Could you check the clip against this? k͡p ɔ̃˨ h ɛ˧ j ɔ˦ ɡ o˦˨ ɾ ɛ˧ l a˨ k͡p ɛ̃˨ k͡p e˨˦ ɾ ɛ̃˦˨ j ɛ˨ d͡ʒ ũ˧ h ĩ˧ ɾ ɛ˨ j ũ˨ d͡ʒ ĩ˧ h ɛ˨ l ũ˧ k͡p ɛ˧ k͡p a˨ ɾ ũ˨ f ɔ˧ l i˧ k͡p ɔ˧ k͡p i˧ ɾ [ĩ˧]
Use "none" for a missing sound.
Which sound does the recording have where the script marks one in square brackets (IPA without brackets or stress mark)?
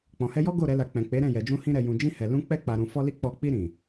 ĩ˨